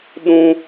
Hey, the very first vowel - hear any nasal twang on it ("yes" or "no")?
yes